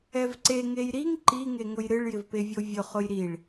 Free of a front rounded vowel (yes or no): yes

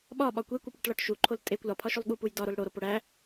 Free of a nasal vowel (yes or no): yes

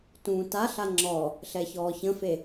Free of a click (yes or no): no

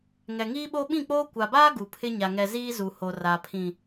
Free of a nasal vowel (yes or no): no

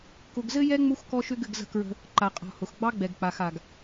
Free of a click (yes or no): no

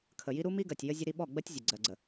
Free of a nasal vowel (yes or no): yes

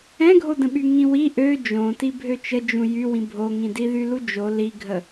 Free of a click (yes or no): yes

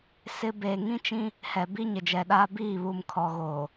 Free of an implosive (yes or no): no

